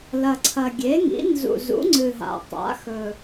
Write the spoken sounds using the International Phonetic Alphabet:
l ɐ˨˩ ǀʰ ɐ˨˩ ɡʲ e˩˥ ŋ ḭ˩˥ n z ṵ˨˩ z ṵ˩˥ ŋ͡ǀ ɨ˨˩ ɦ a̰˨˩ tˤ a̰˩˥ x ɵ˨˩

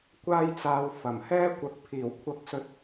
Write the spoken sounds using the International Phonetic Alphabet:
kʷ aː˥ j t͡s aː˧ w f ɐ˨˩ m h ɛː˥ kʷ ɐ˨˥ k̚ pʰ iː˨˩ w kʷʰ ɐ˨˥ k̚ s ɵ˨˥ t̚

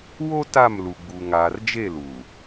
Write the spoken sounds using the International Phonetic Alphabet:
w o˦ t a˦˨ m l u˨ ɡ͡b u˨ ŋ aː˨ r d͡ʒ e˦˨ l u˨

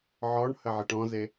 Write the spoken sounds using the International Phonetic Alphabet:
ʕ ɔ ɳ h ə ʕ e ʈ ɔ̃ z e

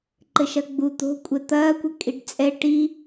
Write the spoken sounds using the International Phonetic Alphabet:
ǃ ɘ ʃ ɐ ɡ͡b u t̪ o̤ kʷʼ ɛ t̪ ɐː kʷ ɘ kʼ i ɖ t͡sʼ ɛ ʈ i

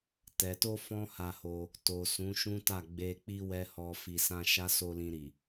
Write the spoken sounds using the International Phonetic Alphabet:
t ɛ˨ t o˧ f ɔ̃˦ h a˧ h o˧ | t o˨ s ũ˨˦ ʃ ũ˦ t a˦˨ ɡ͡b e˨ k͡p i˧ w ɛ˨ h ɔ˨ f i˨ s ã˧ ʃ a˦ s o˧ l ĩ˧ ɾ i˨

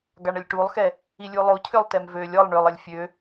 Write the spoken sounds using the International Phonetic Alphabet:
ɡ a ɳ ə lʲ ʈ u lˠ x ɛ | i lʲ u lˠ o cʰ ø lˠ t ɛ m v ø lʲ ɔ lˠ ɳ ø lˠ ə lʲ fʲ ø

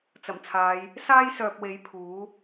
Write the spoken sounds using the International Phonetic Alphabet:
t͡s ɐ˨˩ m t͡sʰ aː˨˧ j | s aː˥ j s œː˨ p̚ w e˨˥ j pʰ uː˨˥

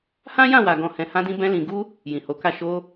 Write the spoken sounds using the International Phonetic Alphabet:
h ã˦ j ã˦˨ w a˨ ɡ ɔ̃˨ h ɛ̃˨ h ã˧ d ĩ˧ b ɛ̃˧ l ĩ˨ ɡ u˧ | j ĩ˨ h o˨˦ k a˦˨ ʃ o˧

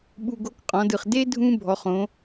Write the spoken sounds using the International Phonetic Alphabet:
ɓ u˧ ɡ o˧˥ k qʼ ɔ̃˩˧ d ɯ˩ χ d e˥ dʱ ũ˥ bʱ ɔ˩˧ χ õ˩˧

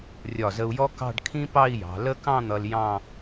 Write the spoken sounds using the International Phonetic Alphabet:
rʲ ɒ˧˩ z ə˧ u̯ j ɔ˥ k ɑ̤˥˧ ɖ kʰ ĩ˥ p ɑ˥˧ i̯ j ɑ̤˩˧ l ə˥˧ k ɑ̃˥˧ n̪ ʌ˧ l j ɑ̃˥˧

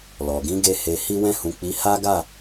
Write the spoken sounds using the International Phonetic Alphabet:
l ɔ˨ ɡ ĩ˨˦ ɡ e˧ h e˨ h i˧ w ɛ̃˧ h ũ˨ k͡p i˨˦ h a˦ ɡ a˦˨

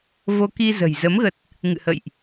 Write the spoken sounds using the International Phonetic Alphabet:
v o˧ k i˧ z ə̤˨˩ j z ə˨˦ m ɣ ə˨˩ t̚ | ŋ ɨ̰˧˨ h ə̰˧˨ j ʔ

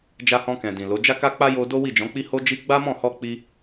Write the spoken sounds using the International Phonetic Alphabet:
d͡ʒ a˧ h ɔ̃˧ k ɛ̃˨ d ĩ˨ l o˨˦ d͡ʒ a˦ k a˦ k͡p a˦ j o˧ d o˦ w i˦˨ d͡ʒ ɔ̃˨˦ k͡p i˦ h o˦ d͡ʒ i˦ ɡ͡b a˦ m ɔ̃˦˨ h ɔ˧ k͡p i˦

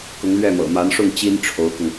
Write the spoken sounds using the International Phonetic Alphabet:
k ʊ˧˥ ŋ l ɥ ɛ˥˩ m ɤ̰˨˩ m a˧˥ n ʂ ʊ˥˩ ŋ t͡ɕ i˥ n ʈ͡ʂʰ o˧˥ ʊ̯ k ʊ˧ ŋ

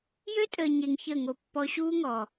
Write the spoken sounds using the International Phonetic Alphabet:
j ø˦ tʼ əː˨ ɲ e˧ ŋ ç əː˦˨ ŋ o˧ pː ɔ˧ ɕ uː˦ ŋ ɔ˨

